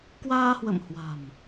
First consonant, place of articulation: velar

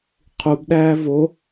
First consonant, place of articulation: uvular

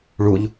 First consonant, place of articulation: retroflex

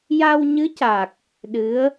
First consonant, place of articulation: palatal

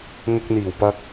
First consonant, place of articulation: velar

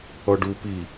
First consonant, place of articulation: retroflex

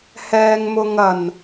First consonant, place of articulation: glottal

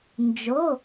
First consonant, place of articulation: alveolar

